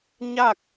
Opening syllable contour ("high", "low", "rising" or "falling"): falling